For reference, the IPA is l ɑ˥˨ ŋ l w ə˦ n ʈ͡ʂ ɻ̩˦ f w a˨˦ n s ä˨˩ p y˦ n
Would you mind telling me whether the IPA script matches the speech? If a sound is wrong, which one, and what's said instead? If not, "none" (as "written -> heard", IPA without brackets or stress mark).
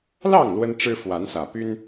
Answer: none